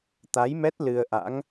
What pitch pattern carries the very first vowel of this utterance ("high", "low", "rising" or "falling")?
rising